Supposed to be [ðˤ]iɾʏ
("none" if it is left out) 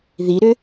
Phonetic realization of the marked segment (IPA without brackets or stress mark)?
ð